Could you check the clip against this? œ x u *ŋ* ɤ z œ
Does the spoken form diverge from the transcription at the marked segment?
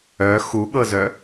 yes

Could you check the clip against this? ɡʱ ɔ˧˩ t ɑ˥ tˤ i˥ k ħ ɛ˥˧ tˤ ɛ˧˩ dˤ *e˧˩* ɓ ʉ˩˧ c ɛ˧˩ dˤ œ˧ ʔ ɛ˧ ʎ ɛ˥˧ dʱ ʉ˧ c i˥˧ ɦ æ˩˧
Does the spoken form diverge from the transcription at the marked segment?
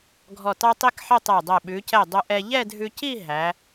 yes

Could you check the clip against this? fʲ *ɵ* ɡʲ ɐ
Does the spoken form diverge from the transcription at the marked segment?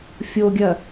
yes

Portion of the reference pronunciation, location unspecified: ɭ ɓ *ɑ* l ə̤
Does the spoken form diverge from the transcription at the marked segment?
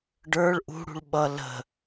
yes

